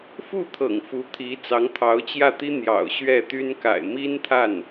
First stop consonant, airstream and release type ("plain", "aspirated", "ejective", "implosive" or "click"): aspirated